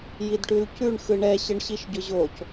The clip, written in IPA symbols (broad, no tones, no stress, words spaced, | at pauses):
jidʈʉlcʉɳ xɯɳɛ ɕɘɳɕiʃɟʊʑoc